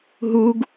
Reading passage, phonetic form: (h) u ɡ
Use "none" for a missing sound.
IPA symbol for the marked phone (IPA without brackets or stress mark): ɦ